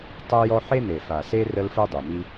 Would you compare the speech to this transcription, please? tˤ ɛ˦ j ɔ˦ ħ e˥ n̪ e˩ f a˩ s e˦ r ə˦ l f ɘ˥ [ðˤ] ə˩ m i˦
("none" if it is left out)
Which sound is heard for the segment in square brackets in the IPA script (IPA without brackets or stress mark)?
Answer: dˤ